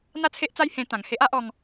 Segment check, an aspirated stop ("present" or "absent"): present